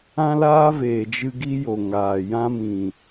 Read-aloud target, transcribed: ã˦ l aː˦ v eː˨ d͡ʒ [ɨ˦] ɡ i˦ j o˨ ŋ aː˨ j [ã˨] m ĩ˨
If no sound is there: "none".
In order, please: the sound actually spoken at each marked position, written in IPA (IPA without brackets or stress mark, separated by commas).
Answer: ɨ˧, ã˦